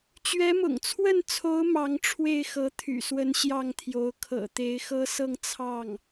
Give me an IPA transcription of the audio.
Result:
t͡ɕ ɥ ɛ˧˥ m ʊ̰˨˩ ŋ t͡sʰ w ə˥˩ n t͡sʰ o˧˥ ʊ̯ m ɑ˧˥ ŋ ʈ͡ʂʰ w e˥˩ ɪ̯ x ɤ˧˥ t̪ʰ y̰˨˩ s w ə˧˥ n ɕ j ɑ˥˩ ŋ t̪ʰ j o˧˥ ʊ̯ kʰ ɤ̰˨˩ t̪ e˧˥ ɪ̯ x ɤ˥ s ɤ˥˧ ŋ t͡sʰ ɑ˥˩ ŋ

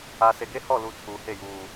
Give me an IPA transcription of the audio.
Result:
a˨ s e˨ ɡ e˦ h ɔ˦˨ l u˨ tʰ uː˨ h e˦˨ j uː˨

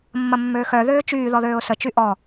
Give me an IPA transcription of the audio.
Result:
mː ɐ mː øː x œ ð øː t͡ʃ yː ð ɔ ð øː ʊ̯ s ə t͡ʃ y ʔ ɔ

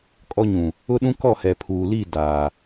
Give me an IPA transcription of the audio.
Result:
kʼ ɔ˦ ɲ ũ˨ | ʊ˦ ɗ ũ˦ k ɔ˦˨ h ɛ˨ pʰ uː˨ l i˦˨ d aː˨

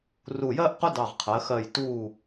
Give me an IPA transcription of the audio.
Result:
r u˧˩ j ɜ˥ ʔ q ʊ˥ d ɑ˧˩ ʁ qʰ ɜ˩˧ x ɜ˧˩ j t uː˧˩

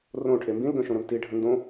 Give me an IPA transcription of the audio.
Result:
r õ ʈʰ e m b ĩ l ɡ œ̃ ʃ õ ɾ ɜ m t i ɖʱ ə̃ n d õ

